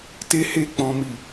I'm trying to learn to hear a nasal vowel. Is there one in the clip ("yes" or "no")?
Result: yes